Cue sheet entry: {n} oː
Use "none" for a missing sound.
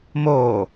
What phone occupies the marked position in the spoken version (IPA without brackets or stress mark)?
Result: m